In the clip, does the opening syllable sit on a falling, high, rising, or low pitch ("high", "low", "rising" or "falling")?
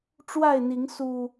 falling